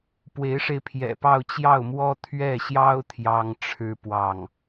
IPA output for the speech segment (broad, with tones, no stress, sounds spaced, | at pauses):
p w e˧˥ ɪ̯ ʂ e˧ ɪ̯ pʰ j ɛ̰˨˩ p ɑ˥˧ ʊ̯ t͡ɕ j ɑ˥˩ ʊ̯ m w ɔ˥ t̪ʰ ɥ ɛ˥˩ ɕ j ɑ˥ ʊ̯ t̪ʰ j ɑ˥ ŋ ʈ͡ʂʰ ɻ̩˥ p w ɑ˥˩ ŋ